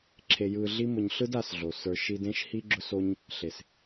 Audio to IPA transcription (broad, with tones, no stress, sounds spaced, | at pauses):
ǁʰ e˧ j ɯ˧ ɮ i˦ m ʊ˧ ɲ ɬ ɯ˦ d a˧ s ɮ o˨ s ə˞˨ ʃ i˧ d ẽ˦ ʃ h i˧ ɡ͡ǁ ʊ˧ s o˧ ɲ | ɬ e˨ s